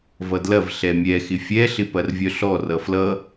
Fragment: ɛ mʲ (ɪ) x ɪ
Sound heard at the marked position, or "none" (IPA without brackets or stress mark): ɛ